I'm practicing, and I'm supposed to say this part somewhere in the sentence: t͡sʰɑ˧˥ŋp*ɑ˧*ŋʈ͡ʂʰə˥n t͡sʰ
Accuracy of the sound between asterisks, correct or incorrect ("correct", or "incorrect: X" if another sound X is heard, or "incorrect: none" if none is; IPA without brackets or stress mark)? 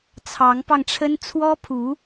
correct